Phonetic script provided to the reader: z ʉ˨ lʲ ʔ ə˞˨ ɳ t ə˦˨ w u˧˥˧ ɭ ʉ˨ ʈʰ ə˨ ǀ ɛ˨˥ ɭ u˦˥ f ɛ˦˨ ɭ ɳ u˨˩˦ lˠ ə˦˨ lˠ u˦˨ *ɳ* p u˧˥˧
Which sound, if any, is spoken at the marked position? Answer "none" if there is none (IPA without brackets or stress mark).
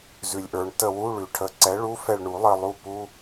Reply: none